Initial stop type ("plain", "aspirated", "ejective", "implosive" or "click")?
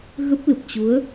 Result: plain